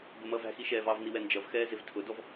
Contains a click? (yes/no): no